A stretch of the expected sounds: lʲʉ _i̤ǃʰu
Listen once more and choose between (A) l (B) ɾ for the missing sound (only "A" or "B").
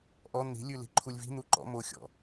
A